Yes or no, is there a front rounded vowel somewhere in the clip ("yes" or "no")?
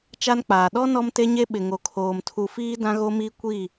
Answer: no